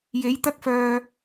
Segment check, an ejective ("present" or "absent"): absent